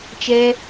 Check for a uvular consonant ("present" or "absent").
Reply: absent